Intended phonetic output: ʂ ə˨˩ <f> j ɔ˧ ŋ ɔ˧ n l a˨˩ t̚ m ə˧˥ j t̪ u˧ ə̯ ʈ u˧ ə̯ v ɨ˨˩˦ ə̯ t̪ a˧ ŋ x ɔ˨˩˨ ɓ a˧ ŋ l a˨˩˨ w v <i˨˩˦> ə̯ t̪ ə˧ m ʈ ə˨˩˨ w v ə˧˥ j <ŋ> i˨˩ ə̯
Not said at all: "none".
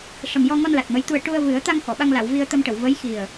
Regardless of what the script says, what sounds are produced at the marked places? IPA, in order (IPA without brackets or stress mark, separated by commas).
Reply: m, i˧, x